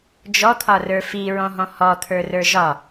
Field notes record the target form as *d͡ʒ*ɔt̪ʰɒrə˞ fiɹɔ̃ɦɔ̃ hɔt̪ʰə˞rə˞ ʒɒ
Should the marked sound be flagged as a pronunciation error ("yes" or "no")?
no